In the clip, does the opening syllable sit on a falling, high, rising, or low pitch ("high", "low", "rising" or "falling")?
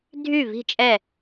falling